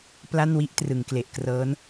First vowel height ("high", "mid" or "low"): low